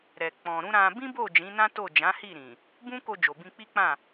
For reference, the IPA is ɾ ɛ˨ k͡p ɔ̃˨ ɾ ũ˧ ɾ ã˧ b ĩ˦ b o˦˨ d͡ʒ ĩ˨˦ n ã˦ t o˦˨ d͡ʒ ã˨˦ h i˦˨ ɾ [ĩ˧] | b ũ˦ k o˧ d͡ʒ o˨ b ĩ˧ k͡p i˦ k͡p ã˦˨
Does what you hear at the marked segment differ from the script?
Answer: yes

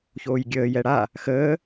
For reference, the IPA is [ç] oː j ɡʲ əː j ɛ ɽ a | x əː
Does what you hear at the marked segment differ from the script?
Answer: no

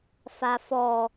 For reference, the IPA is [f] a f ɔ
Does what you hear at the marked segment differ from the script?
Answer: no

